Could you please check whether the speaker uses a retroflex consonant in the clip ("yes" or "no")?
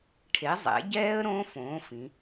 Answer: yes